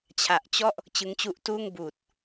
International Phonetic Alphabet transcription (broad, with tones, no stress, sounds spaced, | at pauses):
t͡ɕʰ a˨˩ ʔ t͡ɕ ɔ˥˩ ʔ | t͡ɕ ɯ˦˥ ŋ t͡ɕ u˦˥ ʔ t uː˥˩ ŋ b uː˨˩ t̚